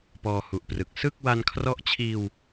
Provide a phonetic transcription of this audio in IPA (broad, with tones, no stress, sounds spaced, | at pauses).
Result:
p ɔː˧ h u˨˩ ʔ p r ɯ˨˩ k̚ s ɯ˥˩ k̚ w a˧ n kʰ r ɔ˦˥ ʔ t͡ɕʰ iː˧ w